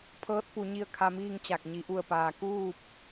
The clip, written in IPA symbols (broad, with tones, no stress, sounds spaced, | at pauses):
pʰ ɤː˧˥ t̚ p u˩˧ ɲ i˧ ə̯ kʰ a˧ m iː˥˨ ŋ t͡ɕ a˧˩ k̚ ɲ i˩ ʔ u˧˩ ə̯ p aː˩ k uː˥˨ p̚